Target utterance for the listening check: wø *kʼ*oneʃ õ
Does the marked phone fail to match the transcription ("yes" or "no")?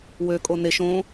no